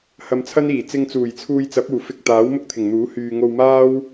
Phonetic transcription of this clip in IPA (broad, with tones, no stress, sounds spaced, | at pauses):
h ɐ˧ m t͡sʰ ɐ˥ n iː˨˩ t͡s ɪ˧ ŋ t͡s uː˨˩ j t͡sʰ uː˧ j t͡s ɐ˨˥ p̚ uː˨˩ f ɪ˧ k̚ t̪ aː˨˥ w m ʊ˥ k̚ t̪ʰ ɪ˨˩ ŋ n̪ uː˨˥ h yː˨ ŋ o˧ w m aː˥ w